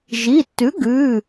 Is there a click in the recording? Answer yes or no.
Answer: no